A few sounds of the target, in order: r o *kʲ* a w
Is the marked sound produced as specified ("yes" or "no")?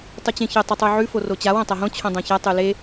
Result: no